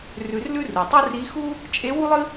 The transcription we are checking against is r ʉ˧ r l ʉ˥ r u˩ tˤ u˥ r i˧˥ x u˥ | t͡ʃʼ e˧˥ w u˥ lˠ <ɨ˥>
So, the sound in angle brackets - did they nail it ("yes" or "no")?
yes